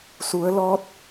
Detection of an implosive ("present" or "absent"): absent